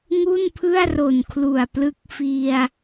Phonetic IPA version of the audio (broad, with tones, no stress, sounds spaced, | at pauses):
ŋ u˥˩ n pʰ ɯ˥˩ a̯ r o˨˩ n kʰ l u˨˩ a̯ p l ɯ˦˥ k̚ f i˧ a̯